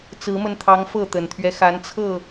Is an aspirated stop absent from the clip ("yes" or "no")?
no